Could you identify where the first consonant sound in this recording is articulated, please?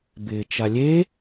labial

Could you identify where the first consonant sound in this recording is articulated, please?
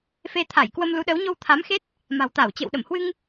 labial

